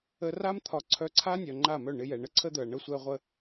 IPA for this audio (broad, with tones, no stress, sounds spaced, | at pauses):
ə˧ r a˦ m t̪ʰ ɒ˧ ǀʰ œ˧ ǀʰ a˦ nʲ œ˨ ŋ͡ǃ a˦˨ m œ˦˨ ɳ ɪ˧ j ɛ˨ ɳ ə˦ ǀʰ ə˦ d̪ œ˨ ɐ̯ ɳ ə˧ sʷ ɛ˧ ʁʷ ə˧